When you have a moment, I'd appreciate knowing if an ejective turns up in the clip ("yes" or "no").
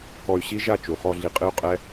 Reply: yes